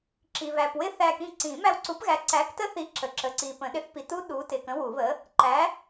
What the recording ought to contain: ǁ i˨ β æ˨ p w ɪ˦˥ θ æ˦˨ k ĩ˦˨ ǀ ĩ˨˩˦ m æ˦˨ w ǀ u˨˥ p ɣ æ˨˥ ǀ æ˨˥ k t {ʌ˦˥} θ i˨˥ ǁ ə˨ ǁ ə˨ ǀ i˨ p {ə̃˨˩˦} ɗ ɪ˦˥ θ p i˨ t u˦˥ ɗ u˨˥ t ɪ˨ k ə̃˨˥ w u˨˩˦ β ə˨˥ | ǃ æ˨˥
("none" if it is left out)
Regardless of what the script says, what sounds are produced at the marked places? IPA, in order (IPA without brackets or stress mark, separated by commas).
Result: ə˦˥, ə̃˨˩˦